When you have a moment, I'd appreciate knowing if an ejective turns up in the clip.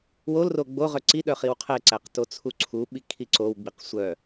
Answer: no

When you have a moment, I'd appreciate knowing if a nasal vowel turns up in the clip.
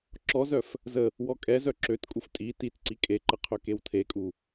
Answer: no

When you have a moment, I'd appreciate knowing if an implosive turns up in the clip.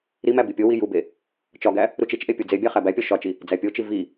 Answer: no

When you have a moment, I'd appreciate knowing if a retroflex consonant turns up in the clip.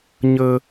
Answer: no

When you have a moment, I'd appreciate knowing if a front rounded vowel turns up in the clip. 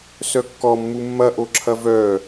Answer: yes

